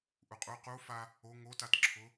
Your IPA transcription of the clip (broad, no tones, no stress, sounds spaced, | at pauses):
ʔ u qʼ u q u f a | o ŋ o t a t ǁʰ ʊ